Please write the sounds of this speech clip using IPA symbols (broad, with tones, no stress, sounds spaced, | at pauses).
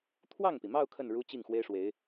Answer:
t̪ʰ w ɑ˥˩ ŋ p i˩ m ɑ˥˧ ʊ̯ kʰ ə˥˩ n ɻ u˥ t͡ɕ i˥˩ ŋ x w e˥ ɪ̯ ʂ w e˧˥ ɪ̯